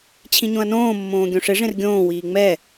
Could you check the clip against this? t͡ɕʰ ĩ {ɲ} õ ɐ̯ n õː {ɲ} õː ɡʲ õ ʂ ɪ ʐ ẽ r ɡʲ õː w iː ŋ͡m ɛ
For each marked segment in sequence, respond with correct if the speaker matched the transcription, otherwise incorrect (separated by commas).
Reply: correct, incorrect